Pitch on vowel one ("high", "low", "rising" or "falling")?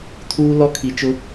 high